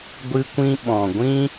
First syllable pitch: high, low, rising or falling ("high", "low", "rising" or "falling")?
high